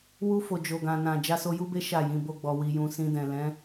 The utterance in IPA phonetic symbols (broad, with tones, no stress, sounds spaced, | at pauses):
w u˧ f o˨ d͡ʒ o˨ ɡ ã˨ n ã˨ d͡ʒ a˧ s o˧ j u˦ b e˦ ʃ a˦˨ j ĩ˧ b o˦ ɡ͡b ɔ˧ w i˧ j ũ˧ s ĩ˧ d ɛ̃˨ l ɛ̃˨˦